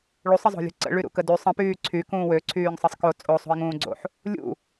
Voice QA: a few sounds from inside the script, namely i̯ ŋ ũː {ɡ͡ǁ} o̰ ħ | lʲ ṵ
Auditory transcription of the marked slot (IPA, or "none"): ɡ͡ǀ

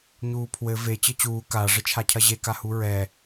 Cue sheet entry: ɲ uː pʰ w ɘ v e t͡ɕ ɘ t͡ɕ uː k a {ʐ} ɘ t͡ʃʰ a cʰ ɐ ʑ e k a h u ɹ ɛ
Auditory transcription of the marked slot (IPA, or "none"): ʐ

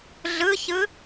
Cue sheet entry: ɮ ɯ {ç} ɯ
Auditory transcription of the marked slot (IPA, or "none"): ç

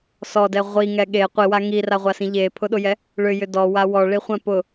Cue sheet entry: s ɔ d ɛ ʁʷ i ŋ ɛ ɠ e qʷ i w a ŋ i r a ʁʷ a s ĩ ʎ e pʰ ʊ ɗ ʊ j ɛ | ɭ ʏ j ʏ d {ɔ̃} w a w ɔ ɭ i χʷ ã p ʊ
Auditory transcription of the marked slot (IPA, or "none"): ɔ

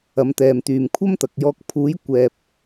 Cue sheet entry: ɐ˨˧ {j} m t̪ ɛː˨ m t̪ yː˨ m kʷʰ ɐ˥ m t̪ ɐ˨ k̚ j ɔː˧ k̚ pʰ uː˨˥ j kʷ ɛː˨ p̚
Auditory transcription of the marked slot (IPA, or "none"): none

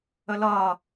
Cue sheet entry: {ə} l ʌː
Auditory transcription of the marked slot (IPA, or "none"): ə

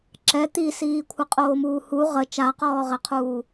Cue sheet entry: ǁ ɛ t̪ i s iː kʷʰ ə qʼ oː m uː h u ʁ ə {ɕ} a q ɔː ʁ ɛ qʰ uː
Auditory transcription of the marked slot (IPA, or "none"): t͡ʃ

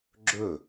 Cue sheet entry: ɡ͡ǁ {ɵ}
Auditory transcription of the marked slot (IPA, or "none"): ɵ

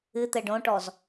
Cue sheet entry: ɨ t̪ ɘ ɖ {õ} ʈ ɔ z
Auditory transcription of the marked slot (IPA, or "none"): õ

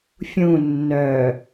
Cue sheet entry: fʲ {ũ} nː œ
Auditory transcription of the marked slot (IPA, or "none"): ũ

